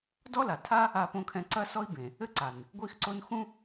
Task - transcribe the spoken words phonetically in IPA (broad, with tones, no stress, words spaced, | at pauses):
dɔ˥la˩tʰa˥ | a˥põ˥kʰɛ̃˥ ǀɐ˥sɔ˥i̯ bẽ˩ | ɘ˥ǀa˩n | ɡʷi˥xǀo˥n xũ˥